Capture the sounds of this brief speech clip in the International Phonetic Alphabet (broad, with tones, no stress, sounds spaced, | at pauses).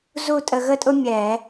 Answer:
z u˥˨ tʼ ə˧ ɣ ə˥ tʼ ʊ˥ mʲ ɛ˧˩˧